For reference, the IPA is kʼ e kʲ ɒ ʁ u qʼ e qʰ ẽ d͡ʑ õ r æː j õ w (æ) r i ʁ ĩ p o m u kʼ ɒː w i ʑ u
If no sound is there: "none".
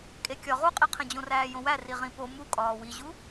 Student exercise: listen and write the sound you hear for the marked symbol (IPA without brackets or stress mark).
æ